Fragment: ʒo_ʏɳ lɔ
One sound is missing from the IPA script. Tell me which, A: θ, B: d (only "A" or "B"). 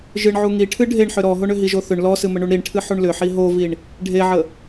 A